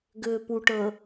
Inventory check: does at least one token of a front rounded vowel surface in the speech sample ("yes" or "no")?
yes